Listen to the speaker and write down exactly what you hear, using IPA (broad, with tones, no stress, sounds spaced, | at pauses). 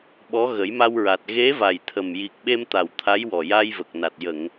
ɓ ɔ˧˥ ɣ ə˨˩˦ j m a˧ w ɹ a˨˩ t̚ ɣ e˧˥ v a˨˩ j t̪ʰ ə˨˩ m j i˨˩ k̚ ɓ e˧ m t̪ a˨˩ w t̪ʰ a˧˥ j w ɔ˨˩ j a˧ j v ə˨˩ k̚ n a˨˩ t̚ j ə˨˩˨ ŋ